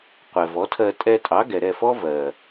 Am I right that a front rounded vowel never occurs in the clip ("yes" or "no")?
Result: yes